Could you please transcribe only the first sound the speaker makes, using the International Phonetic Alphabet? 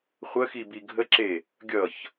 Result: χʷ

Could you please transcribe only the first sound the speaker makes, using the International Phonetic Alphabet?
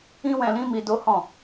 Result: ĩ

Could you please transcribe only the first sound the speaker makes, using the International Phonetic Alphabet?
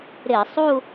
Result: ɾ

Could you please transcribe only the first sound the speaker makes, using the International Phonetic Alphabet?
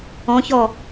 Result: ɔ̃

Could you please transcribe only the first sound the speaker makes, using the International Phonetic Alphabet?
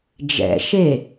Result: d͡ʒ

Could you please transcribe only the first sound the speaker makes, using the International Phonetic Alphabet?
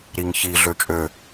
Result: ɾ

